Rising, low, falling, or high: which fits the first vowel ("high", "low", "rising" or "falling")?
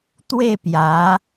falling